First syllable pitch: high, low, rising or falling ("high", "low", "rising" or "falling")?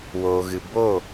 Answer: low